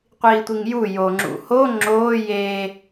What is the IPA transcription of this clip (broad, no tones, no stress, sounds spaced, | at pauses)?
qʷ iː tʷ i ŋ j u j o ŋ͡ǁ ṵ h o ŋ͡ǁ oː j eː